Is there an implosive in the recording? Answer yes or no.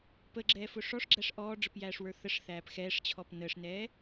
no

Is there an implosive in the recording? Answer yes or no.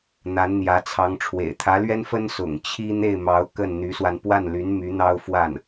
no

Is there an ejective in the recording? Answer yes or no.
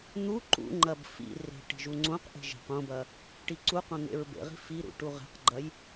no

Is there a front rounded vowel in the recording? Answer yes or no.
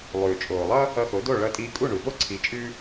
no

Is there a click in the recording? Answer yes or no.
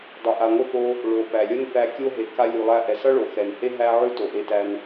no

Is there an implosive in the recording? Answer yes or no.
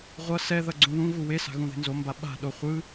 yes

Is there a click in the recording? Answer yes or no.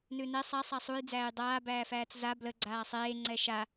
yes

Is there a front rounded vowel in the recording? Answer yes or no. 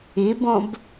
no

